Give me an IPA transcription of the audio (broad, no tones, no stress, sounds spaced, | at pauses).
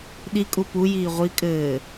ɗ i kʼ u p u j iː ʁʷ i kʼ ɘː